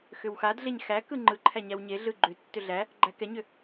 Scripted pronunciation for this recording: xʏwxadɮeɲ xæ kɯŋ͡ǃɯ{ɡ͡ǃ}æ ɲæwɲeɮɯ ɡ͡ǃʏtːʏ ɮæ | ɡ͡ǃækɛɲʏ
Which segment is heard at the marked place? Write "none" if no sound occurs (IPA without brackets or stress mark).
ǃʰ